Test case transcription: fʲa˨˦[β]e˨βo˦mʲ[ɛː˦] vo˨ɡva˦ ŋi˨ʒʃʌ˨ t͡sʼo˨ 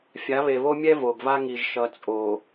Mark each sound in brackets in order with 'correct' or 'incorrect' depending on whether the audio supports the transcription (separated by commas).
correct, incorrect